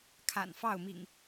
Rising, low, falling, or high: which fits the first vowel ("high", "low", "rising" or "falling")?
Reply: low